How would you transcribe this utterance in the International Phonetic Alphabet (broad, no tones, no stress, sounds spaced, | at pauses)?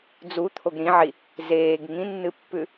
d͡z u t̪ʰ o ɡ ɾ ĩ ʕ i | z eː ɡ ŋ ĩ nː ɨ pː ʉ